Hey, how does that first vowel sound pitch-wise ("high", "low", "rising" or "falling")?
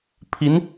rising